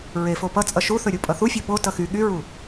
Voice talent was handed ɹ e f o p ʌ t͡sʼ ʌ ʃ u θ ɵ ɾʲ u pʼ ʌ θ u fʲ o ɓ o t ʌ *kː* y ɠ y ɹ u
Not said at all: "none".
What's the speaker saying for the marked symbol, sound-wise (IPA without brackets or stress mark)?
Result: x